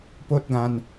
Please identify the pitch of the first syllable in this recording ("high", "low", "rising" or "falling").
high